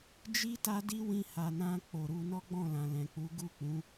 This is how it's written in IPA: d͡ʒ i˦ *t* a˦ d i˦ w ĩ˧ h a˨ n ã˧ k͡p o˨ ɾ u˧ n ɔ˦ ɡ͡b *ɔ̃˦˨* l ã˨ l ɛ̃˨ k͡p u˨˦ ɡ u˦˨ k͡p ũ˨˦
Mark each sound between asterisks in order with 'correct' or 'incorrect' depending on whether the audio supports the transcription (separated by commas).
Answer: correct, correct